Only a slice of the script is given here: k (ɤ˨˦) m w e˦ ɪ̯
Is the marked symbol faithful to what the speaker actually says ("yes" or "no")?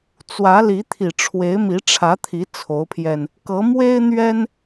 yes